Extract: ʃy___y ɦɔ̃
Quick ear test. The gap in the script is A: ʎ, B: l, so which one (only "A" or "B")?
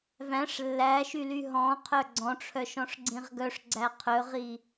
B